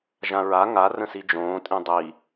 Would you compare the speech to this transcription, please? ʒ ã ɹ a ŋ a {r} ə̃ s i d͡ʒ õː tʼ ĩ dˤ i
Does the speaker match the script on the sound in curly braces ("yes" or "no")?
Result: yes